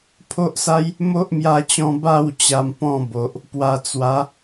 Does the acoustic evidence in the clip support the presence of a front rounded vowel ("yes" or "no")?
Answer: no